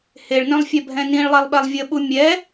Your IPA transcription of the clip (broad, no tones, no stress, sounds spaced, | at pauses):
h e ɭ n œ̃ lˠ fʲ ɛ bʱ ɛ̃ n ĩ ɭ lˠ ɛ lˠ ɓ ɛ lˠ vʲ ə ɓ u mʲ ɛ